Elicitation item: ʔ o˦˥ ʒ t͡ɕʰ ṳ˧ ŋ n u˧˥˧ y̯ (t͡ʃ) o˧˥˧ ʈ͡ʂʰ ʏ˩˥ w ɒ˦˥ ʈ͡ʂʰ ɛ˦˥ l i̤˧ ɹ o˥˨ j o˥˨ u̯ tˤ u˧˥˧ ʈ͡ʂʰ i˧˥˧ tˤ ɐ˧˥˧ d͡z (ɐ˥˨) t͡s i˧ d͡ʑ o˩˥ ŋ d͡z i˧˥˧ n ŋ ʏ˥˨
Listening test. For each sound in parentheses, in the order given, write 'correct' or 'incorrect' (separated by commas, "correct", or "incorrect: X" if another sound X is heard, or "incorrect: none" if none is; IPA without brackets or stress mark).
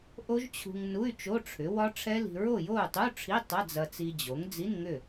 correct, incorrect: ɐ˧